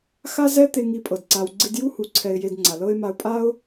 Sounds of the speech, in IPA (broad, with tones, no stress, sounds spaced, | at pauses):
x a˦ z ɛ˦ t̪ e˧ ŋ i˧ pʼ ɤ˨ d ǀ a˧ w ɡ͡ǀ i˧ d j u˦ h u˨˦ ǀʰ ɛ˧ ɪ̯ j e˧ d ŋ͡ǀ a˨ l ɤ˦ ɪ̯ m a˧ ʊ̯ pʼ a˦ ʊ̯